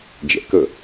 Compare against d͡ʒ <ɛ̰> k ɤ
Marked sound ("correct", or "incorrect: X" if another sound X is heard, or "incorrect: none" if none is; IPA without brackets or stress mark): correct